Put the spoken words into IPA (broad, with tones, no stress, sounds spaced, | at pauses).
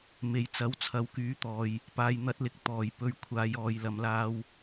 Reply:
m e˨˥ j t͡s ɐ˨˥ w t͡sʰ ɐ˨˧ w k yː˨˥ t̪ ɔː˨ j | p aː˨ j n̪ ɐ˨˥ t̚ l ɪ˨ k̚ t̪ ɔː˨˩ j p ɵ˨˧ ɥ kʷʰ aː˨˧ j ɔː˨ j l ɐ˨˧ m l aː˧ w